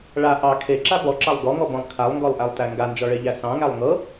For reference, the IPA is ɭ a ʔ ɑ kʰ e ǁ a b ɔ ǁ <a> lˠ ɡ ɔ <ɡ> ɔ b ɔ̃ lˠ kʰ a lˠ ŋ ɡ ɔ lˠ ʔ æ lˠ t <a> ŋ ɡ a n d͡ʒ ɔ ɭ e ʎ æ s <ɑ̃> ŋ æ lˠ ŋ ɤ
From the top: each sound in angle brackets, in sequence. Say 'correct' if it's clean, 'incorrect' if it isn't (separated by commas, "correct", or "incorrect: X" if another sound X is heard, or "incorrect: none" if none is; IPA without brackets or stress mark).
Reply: incorrect: ɑ, incorrect: ŋ, incorrect: æ, correct